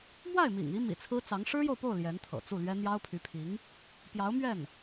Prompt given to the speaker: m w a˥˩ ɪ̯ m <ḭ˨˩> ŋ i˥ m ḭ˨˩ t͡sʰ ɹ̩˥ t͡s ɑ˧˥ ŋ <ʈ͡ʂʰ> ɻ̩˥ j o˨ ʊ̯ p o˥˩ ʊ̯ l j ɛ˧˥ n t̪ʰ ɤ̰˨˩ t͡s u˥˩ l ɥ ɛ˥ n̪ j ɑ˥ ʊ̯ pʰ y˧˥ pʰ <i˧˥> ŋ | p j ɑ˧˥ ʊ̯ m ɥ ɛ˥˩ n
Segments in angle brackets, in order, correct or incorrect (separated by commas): correct, incorrect, correct